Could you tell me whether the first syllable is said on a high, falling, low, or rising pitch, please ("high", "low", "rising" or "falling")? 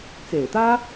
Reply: low